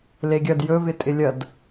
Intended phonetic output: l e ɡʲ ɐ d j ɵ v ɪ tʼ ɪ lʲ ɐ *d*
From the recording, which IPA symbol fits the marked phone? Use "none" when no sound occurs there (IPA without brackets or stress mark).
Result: d